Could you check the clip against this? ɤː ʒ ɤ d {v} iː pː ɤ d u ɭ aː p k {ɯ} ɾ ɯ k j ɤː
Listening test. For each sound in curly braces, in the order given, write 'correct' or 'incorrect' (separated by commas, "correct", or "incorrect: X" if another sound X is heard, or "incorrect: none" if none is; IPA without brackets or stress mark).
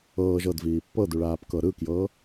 correct, incorrect: ɤ